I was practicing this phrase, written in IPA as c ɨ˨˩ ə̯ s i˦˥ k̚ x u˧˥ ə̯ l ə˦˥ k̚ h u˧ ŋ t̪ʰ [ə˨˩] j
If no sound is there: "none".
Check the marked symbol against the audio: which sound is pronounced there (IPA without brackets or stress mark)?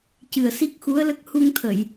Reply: ə˨˩˨